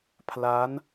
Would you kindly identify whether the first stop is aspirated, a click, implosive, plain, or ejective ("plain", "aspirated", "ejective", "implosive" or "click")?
aspirated